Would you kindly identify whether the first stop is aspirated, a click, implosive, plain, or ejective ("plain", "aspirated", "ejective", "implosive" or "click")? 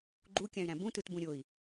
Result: click